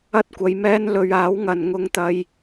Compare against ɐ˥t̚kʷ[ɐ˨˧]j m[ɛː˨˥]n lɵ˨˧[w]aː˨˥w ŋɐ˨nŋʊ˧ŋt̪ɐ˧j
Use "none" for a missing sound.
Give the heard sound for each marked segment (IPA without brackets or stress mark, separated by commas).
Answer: ɐ˨˧, ɛː˥, ɥ